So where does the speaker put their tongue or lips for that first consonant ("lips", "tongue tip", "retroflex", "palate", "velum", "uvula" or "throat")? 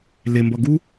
tongue tip